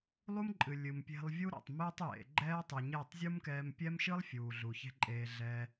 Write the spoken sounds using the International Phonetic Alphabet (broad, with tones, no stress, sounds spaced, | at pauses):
lˠ u˦ m ǃʼ ɨ˨ lʲ ɨ˨ m pʲ e̤˧ lˠ vʲ u˦ ɾ ɛ̰˨ tˤ m eː˦ tˤ j ḛ˨ ɡ͡ǃ ɛː˦ tˤ ɨ˨ ɲ e˦˨ tˤ zʲ u˦ m k ɛː˧ m pʲ ɛ˦ m ʃ ɨ˦ lˠ fʲ uː˨ ɮ u˨ ç e̤˦ ǃʼ eː˧ ɮ ɛ˧